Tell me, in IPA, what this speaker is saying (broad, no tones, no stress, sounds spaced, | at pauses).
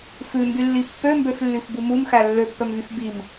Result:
f ʉ m b y lː i pː ø m b ø f lː y f b u m u m x æ lː ø pː œ m v y f b i m